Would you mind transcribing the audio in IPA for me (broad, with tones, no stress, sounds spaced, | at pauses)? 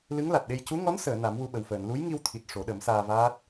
l ɨ˧˥ ŋ l a˨˩ t̚ ɗ e˧ j c u˧˥ ŋ ɔ˧˥ n s əː˨˩˨ n a˨˩˦ m w u˧ ɓ ə˨˩ w f əː˨˩˨ n l u˧˥ j ŋ i˧ w t̪ʰ i˨˩ t̚ ʂ o˨˩˦ ɗ ə˨˩˦ m s aː˧ v aː˦˥ t̚